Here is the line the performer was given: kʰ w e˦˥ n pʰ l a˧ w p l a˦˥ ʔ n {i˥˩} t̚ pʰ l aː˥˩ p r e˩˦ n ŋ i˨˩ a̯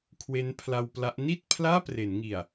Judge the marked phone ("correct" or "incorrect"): correct